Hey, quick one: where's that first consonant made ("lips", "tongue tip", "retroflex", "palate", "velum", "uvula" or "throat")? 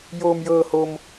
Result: palate